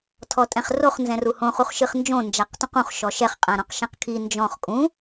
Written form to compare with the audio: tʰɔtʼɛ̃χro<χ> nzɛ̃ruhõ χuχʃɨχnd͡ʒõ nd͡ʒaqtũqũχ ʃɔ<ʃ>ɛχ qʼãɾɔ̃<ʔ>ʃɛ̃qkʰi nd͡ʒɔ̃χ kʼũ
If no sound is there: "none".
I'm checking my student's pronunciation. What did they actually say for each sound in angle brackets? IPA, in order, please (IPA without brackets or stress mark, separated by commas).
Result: χ, ʃ, q